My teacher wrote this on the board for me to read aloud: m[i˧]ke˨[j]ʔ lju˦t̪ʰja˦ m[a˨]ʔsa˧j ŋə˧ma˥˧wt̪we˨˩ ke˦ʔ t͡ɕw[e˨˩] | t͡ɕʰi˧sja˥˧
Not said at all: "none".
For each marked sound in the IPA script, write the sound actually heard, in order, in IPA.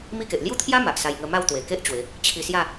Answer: i˦, none, a˨, e˨˦

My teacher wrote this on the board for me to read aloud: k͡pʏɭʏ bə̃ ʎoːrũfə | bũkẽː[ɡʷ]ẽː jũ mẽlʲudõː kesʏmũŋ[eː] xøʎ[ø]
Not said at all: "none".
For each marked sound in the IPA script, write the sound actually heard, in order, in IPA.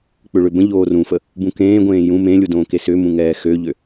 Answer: ɡʷ, ɛː, ø

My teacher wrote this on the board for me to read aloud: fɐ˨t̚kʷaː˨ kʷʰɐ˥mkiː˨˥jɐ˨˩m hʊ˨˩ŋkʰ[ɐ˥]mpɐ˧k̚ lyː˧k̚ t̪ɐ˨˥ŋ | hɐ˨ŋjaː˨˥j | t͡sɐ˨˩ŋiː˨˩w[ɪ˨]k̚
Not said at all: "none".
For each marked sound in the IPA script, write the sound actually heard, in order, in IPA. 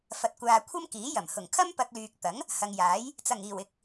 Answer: ɐ˥, ɪ˨

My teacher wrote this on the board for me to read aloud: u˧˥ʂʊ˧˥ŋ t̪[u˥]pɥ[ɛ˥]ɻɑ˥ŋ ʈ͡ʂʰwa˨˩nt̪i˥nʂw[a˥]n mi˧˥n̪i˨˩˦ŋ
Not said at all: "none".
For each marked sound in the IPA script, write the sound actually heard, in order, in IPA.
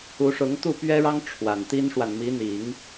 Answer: u˥˩, ɛ˥, a˨

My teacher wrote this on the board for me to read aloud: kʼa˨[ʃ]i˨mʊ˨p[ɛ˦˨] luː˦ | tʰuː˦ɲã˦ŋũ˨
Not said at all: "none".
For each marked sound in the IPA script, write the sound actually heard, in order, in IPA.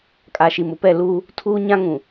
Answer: ʃ, ɛ˦˨

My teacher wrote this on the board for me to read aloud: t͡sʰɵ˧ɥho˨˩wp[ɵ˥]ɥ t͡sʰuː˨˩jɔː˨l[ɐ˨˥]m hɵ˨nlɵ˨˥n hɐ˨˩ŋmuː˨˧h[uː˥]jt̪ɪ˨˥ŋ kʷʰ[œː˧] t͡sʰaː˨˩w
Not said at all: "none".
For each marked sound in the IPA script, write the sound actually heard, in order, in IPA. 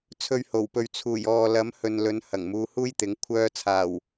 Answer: ɵ˨, ɐ˨˥, uː˥, œː˧

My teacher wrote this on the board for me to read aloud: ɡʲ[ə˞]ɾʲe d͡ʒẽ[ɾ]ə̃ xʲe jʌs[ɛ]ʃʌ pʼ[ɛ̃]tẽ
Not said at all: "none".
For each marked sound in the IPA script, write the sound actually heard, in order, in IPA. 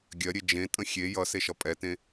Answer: ɜ, tʼ, e, ɛ

